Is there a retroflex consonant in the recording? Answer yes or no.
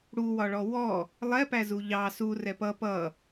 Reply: yes